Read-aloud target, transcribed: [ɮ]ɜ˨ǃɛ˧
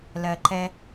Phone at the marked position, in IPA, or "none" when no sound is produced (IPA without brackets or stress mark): l